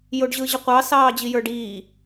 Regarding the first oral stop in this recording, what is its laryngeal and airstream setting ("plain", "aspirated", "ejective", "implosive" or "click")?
plain